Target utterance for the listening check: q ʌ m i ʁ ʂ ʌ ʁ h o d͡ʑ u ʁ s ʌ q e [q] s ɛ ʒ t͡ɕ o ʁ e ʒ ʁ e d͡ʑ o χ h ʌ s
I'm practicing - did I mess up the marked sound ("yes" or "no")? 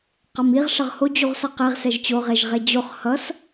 yes